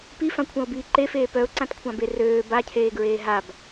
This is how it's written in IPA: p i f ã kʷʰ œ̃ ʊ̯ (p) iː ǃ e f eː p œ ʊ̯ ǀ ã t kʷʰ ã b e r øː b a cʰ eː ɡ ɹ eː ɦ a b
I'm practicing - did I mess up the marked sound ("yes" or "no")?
yes